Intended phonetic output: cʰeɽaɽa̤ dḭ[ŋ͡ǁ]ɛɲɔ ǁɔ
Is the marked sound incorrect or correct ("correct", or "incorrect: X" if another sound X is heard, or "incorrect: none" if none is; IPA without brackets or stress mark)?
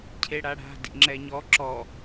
correct